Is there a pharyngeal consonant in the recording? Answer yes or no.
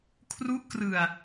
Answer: no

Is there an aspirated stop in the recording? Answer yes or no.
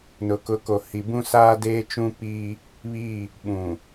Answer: no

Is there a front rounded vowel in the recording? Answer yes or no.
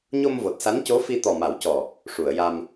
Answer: no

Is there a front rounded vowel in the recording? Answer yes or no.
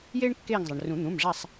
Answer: no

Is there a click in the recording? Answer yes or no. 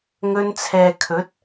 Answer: no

